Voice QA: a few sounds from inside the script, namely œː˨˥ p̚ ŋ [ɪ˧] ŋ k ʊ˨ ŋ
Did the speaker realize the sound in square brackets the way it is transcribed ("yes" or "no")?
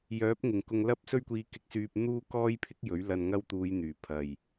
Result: no